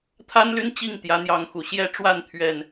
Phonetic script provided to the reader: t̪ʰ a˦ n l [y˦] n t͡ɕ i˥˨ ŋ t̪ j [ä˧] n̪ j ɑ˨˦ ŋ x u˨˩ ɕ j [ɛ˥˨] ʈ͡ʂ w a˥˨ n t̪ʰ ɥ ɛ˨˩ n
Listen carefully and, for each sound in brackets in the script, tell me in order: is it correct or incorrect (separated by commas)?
correct, incorrect, correct